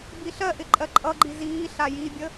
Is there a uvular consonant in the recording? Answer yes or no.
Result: no